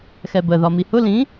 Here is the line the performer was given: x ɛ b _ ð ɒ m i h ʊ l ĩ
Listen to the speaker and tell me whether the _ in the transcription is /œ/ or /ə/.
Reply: ə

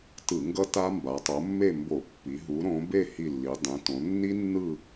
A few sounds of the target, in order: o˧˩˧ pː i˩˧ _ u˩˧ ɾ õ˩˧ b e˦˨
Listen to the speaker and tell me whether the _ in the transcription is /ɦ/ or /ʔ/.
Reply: ɦ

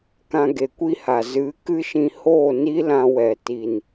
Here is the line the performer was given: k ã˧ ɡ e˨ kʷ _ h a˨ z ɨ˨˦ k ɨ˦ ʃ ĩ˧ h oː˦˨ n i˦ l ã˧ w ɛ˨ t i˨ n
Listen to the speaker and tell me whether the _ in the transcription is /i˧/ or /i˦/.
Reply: i˦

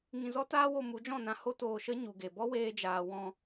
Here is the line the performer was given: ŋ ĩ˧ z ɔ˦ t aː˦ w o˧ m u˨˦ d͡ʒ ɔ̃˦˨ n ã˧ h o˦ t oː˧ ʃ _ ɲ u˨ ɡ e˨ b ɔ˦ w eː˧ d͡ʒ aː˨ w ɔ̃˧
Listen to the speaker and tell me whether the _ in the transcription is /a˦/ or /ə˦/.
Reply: ə˦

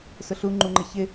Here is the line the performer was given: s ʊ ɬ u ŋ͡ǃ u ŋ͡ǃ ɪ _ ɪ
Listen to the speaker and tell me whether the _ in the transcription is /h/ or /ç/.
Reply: ç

